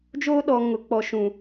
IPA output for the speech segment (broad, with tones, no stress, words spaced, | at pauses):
d͡ʒoː˦ɗɔ˨ ŋʊ˨k͡pɔ˨ʃũ˨